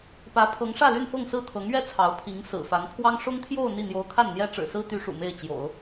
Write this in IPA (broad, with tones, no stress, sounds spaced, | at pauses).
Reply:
p ä˧˥ pʰ ɤ˧˥ ŋ ʂ ä˥˧ l y˥˧ n f ɤ˥˧ ŋ s ɹ̩˥˩ t̪ʰ ɤ˧˥ ŋ ɥ ɛ˥ t͡sʰ ɑ˧˥ ʊ̯ pʰ i˧˥ ŋ s ɹ̩˨˩ f a˧˥ n pʰ w ɑ˥ ŋ ʂ ʊ˥ ŋ t̪ʰ j o˥˧ ʊ̯ n̪ i˥˩ n̪ j o˧˥ ʊ̯ kʰ a˥˩ n n̪ j ɛ˥ ʈ͡ʂ ɻ̩˨˩ s ɹ̩˥ t̪ y˧˥ ʂ ṵ˨˩ m e˥˩ ɪ̯ t͡ɕ j o̰˨˩˦ ʊ̯